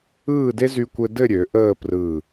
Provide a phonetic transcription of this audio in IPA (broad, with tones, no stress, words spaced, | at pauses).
ɯː˥˧de˥ zy˥kʷɘ˥ dɘ˥˧ɾʲø˩˧ ʔəː˥˧ prɯː˧˩